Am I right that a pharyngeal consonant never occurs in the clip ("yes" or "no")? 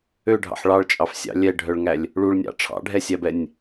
no